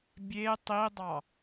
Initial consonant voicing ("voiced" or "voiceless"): voiced